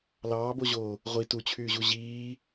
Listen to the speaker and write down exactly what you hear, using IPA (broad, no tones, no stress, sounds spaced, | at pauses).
l ɑː b o ʑ oː | ʁʷ i t u t͡ɕʰ yː ʑ u ʑ iː